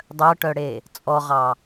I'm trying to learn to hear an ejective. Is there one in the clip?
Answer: yes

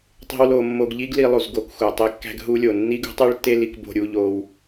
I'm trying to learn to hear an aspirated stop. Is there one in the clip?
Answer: no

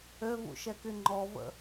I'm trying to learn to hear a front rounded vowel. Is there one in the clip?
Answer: yes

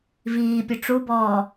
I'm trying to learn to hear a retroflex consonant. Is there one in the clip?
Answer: yes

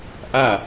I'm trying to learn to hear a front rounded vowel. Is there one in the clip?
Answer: no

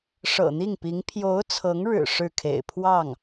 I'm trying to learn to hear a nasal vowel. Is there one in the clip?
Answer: no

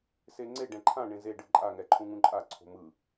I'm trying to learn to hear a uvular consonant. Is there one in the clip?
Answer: no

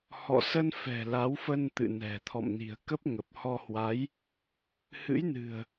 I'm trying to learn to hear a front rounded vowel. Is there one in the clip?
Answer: no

